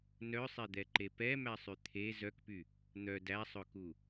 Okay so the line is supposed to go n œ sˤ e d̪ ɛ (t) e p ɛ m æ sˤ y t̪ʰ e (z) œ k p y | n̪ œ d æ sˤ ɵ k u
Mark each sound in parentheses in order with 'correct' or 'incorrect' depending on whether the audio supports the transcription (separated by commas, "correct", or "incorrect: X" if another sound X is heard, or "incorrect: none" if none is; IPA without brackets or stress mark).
incorrect: ǃ, correct